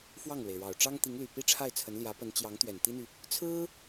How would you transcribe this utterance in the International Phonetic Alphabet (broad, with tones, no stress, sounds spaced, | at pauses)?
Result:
f w ɑ˥˩ ŋ l w e˩ ɪ̯ ɻ ɑ˨˩ ʊ̯ ʈ͡ʂ ɑ˥ ŋ t̪ i˧˥ ŋ l y˨˩ p i˥ ʈ͡ʂʰ a˥˩ ɪ̯ t͡sʰ ə˧˥ n l j ä˧˥ p ə˧˥ n t͡ɕ j ɑ˧˥ ŋ t̪ ɥ ɛ˨˩ n t̪ i˥ n̪ y˨ | t͡sʰ ɹ̩˥